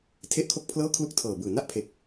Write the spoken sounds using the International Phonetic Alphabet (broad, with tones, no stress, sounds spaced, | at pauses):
tʰ e˥˩ ʔ kʰ o˥˩ k̚ pʰ l ɤː˥˩ kʰ l u˥˩ k̚ tʰ ɤː˨˩ b ɯː˨˩ n a˥˩ ʔ pʰ e˨˩ k̚